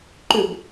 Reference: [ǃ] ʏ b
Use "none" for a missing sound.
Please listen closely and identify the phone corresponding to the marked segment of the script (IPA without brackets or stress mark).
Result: ǃ